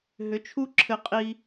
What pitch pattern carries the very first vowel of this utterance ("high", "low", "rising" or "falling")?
rising